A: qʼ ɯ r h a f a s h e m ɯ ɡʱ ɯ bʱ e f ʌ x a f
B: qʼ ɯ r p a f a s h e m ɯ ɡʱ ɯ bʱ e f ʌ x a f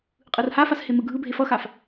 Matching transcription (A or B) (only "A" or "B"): A